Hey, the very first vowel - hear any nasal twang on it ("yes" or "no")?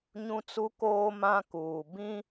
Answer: yes